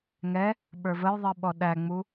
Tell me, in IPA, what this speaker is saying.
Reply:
ŋ ɛ | ɓ ə˞ v ə j ðˤ i ɓ ɔ ɗ æ ŋ͡m u

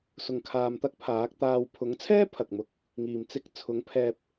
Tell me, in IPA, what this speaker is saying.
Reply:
s ʊ˨ ŋ kʰ aː˨ m t̪ ɐ˥ k̚ pʰ aː˨˥ k̚ t̪ aː˧ w pʰ ʊ˨˥ ŋ t͡sʰ ɛː˥ pʰ ɐ˨ k̚ m ʊ˧ k̚ | ŋ iː˨ m t͡s ɪ˧ k̚ t͡sʰ ʊ˨˥ ŋ pʰ ɛː˧ p̚

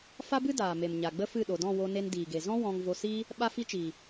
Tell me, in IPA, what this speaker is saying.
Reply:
f a˦ b ɨ˦ d aː˨ m e˨ m ɲ a˨ ɡ͡b ə˦ f ɨ˦˨ ɗ o˨ d ɔ̃˦˨ w o˧ n e˧ n d iː˨ ɡ e˨ z ɔ̃˦ w ɔ̃˧ ŋ v o˧ s iː˦ | ɓ a˦ f i˦ t͡ʃ iː˨

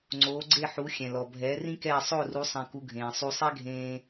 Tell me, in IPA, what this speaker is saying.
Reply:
ŋ͡ǀ oː˩˥ ɡ͡ǀ e˥˩ ħ u˩˥ xʲ ɛ̃˩ l ɔ˩ bʱ ɛː˩˥ r ĩ˥ k ɛː˥˩ sˤ o˥˩ r u˩˥ sˤ ɛ̃˧ k u˧ ɡʱ ẽː˩ sˤ u˧ sˤ ɛ˥ ɡʱ ẽː˧

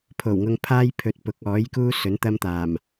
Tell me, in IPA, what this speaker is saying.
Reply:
pʰ o˨˩ w ŋ ʊ˧ ŋ pʰ aː˥ j pʰ ɵ˨ t̚ p ʊ˨˥ k̚ ɔː˨˥ j k uː˥ s ɵ˨˥ n t̪ ɐ˥ m t̪ aː˨˩ m

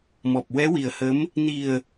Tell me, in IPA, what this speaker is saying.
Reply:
m ɔ˨˩ p̚ w ɛ˧˥ w i˨˩ ə̯ h ə˧˥ m | n i˨˩ ə̯

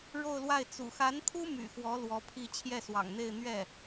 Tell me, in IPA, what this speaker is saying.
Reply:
ɻ o˥˧ ʊ̯ l w a˥˩ ɪ̯ t͡s ṵ˨˩ x a˧˥ n t̪ʰ u˥ m y̰˨˩ x w ɔ˧˥ l w ɔ˧˥ pʰ i˥˧ t͡ɕʰ j ɛ˥˩ s w ɑ̰˨˩ ŋ n̪ e˥˧ ɪ̯ n̪ ɥ ɛ˥˩

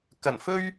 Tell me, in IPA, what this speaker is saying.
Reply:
k ɐ˨˩ n f ɵ˥ ɥ

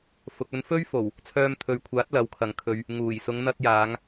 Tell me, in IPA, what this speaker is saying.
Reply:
f ʊ˨ k̚ ɵ˧ n f ɵ˥ ɥ f o˨˩ w | t͡sʰ œː˧ m t̪ʰ ɵ˨ ɥ kʷʰ aː˨˥ t̚ l ɐ˨˥ w kʰ ɐ˨ ŋ kʰ ɵ˨ ɥ | ŋ uː˨˩ j s ʊ˨˧ ŋ n̪ ɐ˧ t̚ j aː˨˧ ŋ

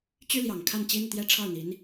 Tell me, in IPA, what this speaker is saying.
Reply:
t͡ɕ y˥ l j ɑ˨˩ ŋ kʰ a˥˩ n t͡ɕ i˥ n̪ u˨ t̪ j ɛ˥ ʈ͡ʂʰ ɑ˥˩ ʊ̯ n̪ i˧˥ n

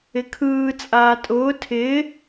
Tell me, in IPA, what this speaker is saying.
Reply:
ɪ kʰ ɯː t͡sʼ aː tʼ ʊː tʰ ɪː

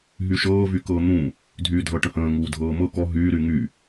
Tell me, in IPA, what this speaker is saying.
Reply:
ɦ y ʃ ɤː v y k ɤː n̪ ũ | dʱ yː dʱ ɤ ʈ ə̃ h ə̃ː ŋ uː dʱ ɤː m ɤ k ɔ ɦ yː ɾ y ŋ y

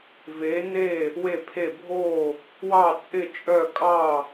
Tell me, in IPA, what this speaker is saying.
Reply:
v e˧˥ n e˥˧ | w e˥˧ pʰ e˥˧ bʱ o˥˧ | w ɑ˥˧ t͡sʼ ɪ˥˧ t͡ʃʼ œ˥˧ kʼ ɑ˥˧

